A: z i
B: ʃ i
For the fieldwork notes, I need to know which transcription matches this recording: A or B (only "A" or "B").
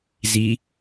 A